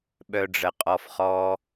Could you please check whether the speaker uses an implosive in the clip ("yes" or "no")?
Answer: yes